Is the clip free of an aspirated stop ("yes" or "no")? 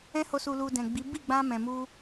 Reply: yes